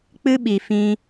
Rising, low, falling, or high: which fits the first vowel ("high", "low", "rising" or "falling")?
high